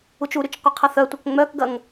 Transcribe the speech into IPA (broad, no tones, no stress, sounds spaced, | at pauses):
u t͡ʃ u ɾ y t͡ʃ qʷ ɐ qʰ ɐ θ œ tʷ ɐ k ŋ͡m œ k ɡ ɐ ŋ